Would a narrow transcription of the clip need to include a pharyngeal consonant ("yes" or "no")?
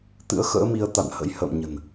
no